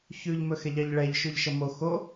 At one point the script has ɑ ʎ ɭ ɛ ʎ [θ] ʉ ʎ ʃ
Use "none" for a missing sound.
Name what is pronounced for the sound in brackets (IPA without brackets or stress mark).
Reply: ʃ